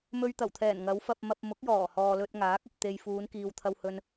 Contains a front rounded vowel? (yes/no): no